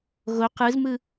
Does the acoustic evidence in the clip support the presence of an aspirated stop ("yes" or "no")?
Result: no